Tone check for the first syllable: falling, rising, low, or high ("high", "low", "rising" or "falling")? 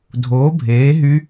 rising